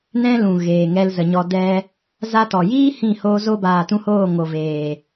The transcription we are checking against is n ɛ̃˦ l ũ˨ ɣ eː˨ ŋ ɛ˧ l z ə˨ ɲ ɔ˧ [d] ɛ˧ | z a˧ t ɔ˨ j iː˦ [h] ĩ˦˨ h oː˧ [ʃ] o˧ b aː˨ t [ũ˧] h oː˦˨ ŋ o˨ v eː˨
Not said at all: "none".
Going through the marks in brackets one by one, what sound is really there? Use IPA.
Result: d, h, z, ũ˧

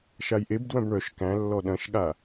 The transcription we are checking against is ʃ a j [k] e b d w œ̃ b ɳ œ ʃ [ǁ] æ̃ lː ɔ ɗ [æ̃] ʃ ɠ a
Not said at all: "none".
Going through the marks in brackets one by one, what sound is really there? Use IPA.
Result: ʔ, k, ɐ̃

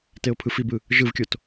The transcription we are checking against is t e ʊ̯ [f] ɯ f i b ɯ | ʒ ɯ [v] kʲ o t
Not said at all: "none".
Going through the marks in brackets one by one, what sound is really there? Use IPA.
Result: pʰ, v

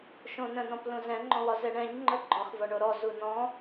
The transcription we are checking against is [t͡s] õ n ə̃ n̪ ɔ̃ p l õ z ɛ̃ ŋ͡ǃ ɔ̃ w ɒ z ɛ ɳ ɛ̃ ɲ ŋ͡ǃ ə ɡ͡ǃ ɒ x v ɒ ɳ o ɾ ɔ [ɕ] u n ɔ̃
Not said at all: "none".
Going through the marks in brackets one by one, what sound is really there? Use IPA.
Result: ʃ, z

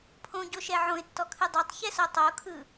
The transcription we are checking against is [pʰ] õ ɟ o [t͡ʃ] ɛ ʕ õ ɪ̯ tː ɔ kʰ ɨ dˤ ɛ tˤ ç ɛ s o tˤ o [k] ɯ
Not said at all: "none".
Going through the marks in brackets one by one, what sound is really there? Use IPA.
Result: pʰ, ʃ, kʰ

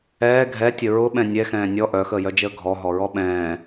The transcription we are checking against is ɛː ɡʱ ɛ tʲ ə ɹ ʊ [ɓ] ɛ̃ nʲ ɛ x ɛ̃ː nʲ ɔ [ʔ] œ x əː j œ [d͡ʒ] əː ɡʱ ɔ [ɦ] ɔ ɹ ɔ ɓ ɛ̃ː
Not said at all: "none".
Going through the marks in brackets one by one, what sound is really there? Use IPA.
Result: ɓ, ʔ, d͡ʒ, ɦ

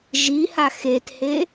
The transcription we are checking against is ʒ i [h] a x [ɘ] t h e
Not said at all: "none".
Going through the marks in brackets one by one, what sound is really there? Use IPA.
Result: h, e

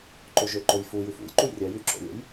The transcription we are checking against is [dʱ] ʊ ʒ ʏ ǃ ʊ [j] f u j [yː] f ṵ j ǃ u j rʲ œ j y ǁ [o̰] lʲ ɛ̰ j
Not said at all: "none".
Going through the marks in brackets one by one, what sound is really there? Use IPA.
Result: ǃ, j, y, o̰

